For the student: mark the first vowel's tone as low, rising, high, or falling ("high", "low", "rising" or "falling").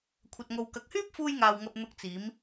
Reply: low